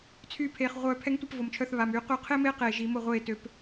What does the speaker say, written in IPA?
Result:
t͡sʰ y˧˩ pʰ eː˩ χ ʁʷ œː˧˩ pʰ ɛ˧˥ ŋ tʷ e˥˩ p v o˩ m t͡ʃʰ œ˧˩ θ β a˩ m y˨˩˦ q y˧˥ qʰ e˥ m e˥ q eː˧˩ ʒ i˨˩˦ m o˥˩ ʁʷ eː˥˩ t ø˨˩˦ p

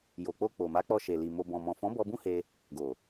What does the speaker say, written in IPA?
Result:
j o˨ k͡p o˧ k͡p o˨ m a˨˦ k͡p ɔ˧ ʃ e˨ l i˨ m o˧ b ɔ̃˨ m ɔ̃˨ f ɔ̃˨˦ b ɔ˧ b ũ˦ h e˧ | ɡ o˨

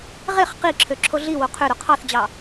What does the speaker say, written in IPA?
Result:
ʁ e χ q i ǁʰ ø ǁʰ o ɮ i w o qʰ ø ɾ o qʰ ɑ θ d͡ʑ ɑ

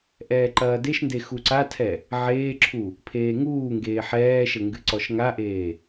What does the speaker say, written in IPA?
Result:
ʔ ɛː ǃ ɐː d e ʃ n d e x u ǀ a tʰ ɛ | ʕ eː ǁʰ u | pʰ eː ŋ uː ŋ ɡ eː ħ ɛː ʃ ɘ ŋ ɡ ɨ ǀ ɔ ʃ ŋ a ʔ eː

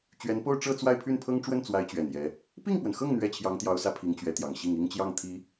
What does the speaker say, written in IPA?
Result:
t͡ɕ ɥ ɛ˧˥ n p o˥˧ ʊ̯ ʈ͡ʂ ɤ˥˧ t͡s w a˥˧ ɪ̯ pʰ y˥˩ n pʰ ɤ˥ ŋ ʈ͡ʂ w ə˥˩ n t͡s w a˧˥ ɪ̯ t͡ɕ ɥ ɛ˨˩ n j ɛ˧˥ | p i˥˩ ŋ p w ə˩ n x ɤ˥˩ ŋ n̪ ɥ ɛ˥ t͡ɕʰ j ɑ˧˥ ŋ t̪ j ɑ˧˥ ʊ̯ s ä˧˥ pʰ i˧˥ ŋ t͡ɕ ɥ ɛ˧˥ t̪ j ɑ˨˩ ŋ ɕ i˥˩ ŋ i˥ ŋ t͡ɕ j ɑ˥˩ ŋ t̪ʰ i˧˥

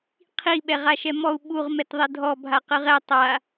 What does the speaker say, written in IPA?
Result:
qʰ i ɓ ɛ ʁ a ʃ ɛ m ɔ u̯ ɓ u ʁ m ɛ t ðˤ e dʱ ɔ bʱ a q ɯ ʁ ɛ tˤ a

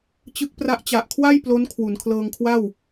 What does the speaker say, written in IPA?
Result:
t͡ɕ ɯ˦˥ k̚ p r a˦˥ ʔ t͡ɕ a˨˩ ʔ kʰ w a˥˩ j p l o˦˥ n kʰ w u˩˦ n kʰ l ɤː˧ ŋ kʰ w a˥˩ w

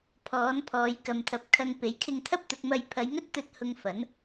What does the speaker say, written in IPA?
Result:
pʰ ɔː˨˥ n pʰ ɔː˨˧ j k ɐ˨ m t̪ʰ ɐ˨ p̚ kʰ ɐ˧ ŋ p e˨˥ j kʰ ɪ˧ ŋ t̪ʰ ɐ˥ p̚ t̪ ʊ˨˥ k̚ m ɐ˧ j pʰ ɐ˨˧ j ŋ ɵ˥ t̚ t̪ ɵ˧ t̚ h ʊ˧ ŋ f ɐ˨˥ n

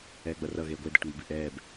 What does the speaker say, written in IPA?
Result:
ɛː ɡ͡b ʌ r ʌ ɣ eː ɡʷ e d ɛ ʈ ŋ͡m o b i ʔ ɛː b

